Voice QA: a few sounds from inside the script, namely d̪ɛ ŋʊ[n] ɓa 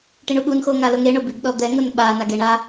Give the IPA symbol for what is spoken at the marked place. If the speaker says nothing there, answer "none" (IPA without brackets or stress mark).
n